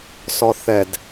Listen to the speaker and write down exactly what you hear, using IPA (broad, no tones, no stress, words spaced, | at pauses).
sɔθɛd